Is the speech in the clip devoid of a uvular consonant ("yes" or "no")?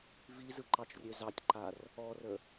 yes